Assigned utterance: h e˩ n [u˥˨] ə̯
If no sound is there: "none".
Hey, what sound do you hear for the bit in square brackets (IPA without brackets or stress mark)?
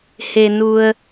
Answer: u˩